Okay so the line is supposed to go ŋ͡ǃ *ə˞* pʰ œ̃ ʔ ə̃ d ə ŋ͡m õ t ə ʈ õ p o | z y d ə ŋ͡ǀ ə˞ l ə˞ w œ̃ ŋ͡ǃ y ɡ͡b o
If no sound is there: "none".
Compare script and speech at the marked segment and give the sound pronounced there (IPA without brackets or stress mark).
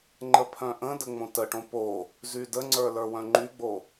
ə